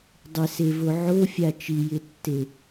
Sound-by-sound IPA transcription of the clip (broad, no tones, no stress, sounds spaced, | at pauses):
dˤ ɪ s e v o ʕ o fʲ a t͡ʃ i j ɪ tː e